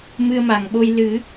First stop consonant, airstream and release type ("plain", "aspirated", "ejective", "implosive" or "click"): implosive